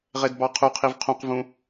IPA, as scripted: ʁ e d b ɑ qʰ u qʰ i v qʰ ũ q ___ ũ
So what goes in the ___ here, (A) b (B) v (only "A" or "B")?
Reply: B